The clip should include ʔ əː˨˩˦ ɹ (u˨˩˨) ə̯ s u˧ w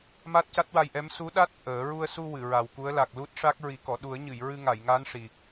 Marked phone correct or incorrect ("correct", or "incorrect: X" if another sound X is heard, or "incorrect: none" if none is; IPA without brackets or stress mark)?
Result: incorrect: u˧